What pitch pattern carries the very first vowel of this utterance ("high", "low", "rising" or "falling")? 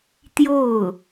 falling